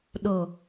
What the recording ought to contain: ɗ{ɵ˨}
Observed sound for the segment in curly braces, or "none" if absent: o˨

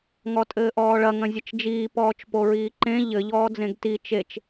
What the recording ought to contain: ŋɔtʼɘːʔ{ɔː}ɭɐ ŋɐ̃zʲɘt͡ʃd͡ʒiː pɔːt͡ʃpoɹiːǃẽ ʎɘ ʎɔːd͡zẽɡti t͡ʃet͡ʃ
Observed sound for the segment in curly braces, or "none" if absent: ɔː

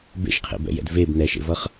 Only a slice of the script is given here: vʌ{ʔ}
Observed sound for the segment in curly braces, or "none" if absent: χ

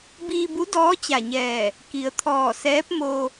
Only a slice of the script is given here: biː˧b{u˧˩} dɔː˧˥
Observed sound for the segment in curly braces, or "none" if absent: u˧˥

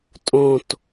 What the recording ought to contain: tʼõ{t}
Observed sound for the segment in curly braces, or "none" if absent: t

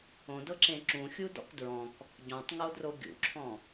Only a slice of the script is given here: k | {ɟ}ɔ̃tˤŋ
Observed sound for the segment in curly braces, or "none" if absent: ɟ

